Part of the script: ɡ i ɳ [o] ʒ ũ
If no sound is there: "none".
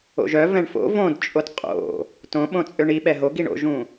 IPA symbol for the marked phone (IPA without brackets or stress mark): o̰